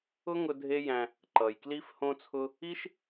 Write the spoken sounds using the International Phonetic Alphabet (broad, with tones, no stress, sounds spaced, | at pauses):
ʊ˦ ŋ ʊ˧ dʱ e˦ j æ̃˧ | ǃ ʌ˨ j k l i˦ f h õ˦ t͡sʰ ʊ˦ | i˦ ʃ